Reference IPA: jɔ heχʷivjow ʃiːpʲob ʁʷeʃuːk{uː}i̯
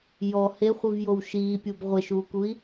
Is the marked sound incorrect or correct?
incorrect